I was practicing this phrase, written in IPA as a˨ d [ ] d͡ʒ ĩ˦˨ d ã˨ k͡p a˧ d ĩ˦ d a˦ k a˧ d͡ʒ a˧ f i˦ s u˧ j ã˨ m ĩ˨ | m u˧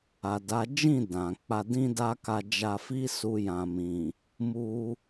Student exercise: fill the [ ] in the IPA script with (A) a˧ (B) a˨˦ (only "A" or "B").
B